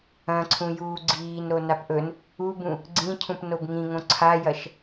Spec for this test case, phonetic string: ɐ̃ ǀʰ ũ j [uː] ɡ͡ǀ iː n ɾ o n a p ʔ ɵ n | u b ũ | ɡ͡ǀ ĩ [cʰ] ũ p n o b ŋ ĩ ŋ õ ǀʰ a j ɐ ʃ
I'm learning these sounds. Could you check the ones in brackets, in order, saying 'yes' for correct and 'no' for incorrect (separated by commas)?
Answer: yes, yes